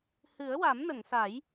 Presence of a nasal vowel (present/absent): absent